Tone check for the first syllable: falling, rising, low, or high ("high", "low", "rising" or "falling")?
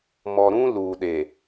low